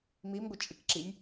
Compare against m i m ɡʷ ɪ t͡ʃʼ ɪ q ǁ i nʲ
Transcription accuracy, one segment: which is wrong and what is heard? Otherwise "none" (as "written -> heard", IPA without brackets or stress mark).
q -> k